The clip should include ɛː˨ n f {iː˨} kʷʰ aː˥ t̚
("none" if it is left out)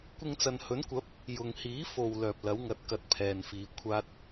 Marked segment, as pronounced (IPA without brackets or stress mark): iː˨